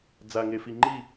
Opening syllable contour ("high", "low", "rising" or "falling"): low